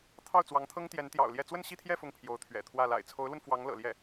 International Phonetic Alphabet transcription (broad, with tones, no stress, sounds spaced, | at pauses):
t̪ʰ ɑ˥˩ ʊ̯ t͡s w ɑ˧˥ ŋ t̪ʰ ɤ˥ ŋ t̪ j ɛ˧˥ n t̪ j ɑ̰˨˩ ʊ̯ l j ɛ˥˧ t͡s w ə˥˧ n ɕ i˥˧ t̪ʰ j ɛ˥˧ f ʊ˥˩ ŋ pʰ j o˧˥ ʊ̯ t̪ʰ ɥ ɛ̰˨˩ t̪ʰ w ä˥˩ l a̰˨˩ ɪ̯ t͡sʰ o˧˥ ʊ̯ l w ə˧ n f w ɑ˧˥ ŋ l ɤ̰˨˩ l j ɛ˥˩